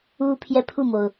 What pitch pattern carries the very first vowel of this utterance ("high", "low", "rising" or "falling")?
high